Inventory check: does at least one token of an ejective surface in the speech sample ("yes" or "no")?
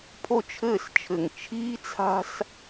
no